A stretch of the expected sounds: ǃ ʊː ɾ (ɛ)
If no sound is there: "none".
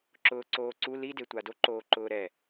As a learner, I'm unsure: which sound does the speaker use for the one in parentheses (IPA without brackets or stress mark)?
ɛ